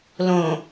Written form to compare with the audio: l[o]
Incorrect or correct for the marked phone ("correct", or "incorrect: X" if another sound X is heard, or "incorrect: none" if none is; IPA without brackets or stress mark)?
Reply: incorrect: õ